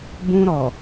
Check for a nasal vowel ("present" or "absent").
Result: present